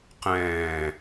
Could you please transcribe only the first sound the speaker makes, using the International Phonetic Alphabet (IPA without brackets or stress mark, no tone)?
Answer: q